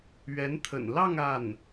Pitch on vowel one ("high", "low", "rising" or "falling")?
rising